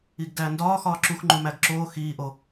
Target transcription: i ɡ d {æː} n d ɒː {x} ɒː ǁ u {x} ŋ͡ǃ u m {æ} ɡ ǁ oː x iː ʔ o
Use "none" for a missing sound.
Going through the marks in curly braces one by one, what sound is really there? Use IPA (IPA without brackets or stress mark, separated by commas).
æː, x, x, æ